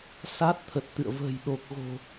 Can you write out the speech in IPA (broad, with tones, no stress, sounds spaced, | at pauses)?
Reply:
s a˦˥ t̚ t̪ʰ ə˨˩ t̚ t̪ ɨ̰˧˨ ə̯ v ə̤ː˨˩ j ɗ o˨˩ k̚ ɣ o̤˨˩